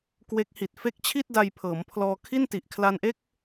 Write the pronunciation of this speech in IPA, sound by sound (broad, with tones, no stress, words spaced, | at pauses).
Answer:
kwe˦˥k̚ hi˨˩t̚ fe˦˥k̚t͡ɕʰi˥˩t̚ da˧jpʰɤː˩˦mpʰlɔː˧ kʰi˥˩n ti˨˩ʔkʰla˧nʔe˥˩k̚